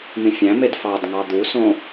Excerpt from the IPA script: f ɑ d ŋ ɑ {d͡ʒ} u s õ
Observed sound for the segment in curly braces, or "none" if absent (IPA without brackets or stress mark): d̪